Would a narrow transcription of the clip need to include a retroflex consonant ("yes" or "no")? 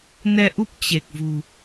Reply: no